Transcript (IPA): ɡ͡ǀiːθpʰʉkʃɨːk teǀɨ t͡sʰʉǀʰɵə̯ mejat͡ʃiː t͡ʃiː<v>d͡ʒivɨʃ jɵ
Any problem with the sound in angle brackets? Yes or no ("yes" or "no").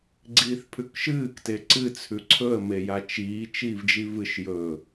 no